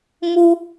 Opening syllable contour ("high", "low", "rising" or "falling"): high